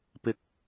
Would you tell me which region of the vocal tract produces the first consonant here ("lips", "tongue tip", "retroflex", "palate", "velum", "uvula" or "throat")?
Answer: lips